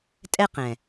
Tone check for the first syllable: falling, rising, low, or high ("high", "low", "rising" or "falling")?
high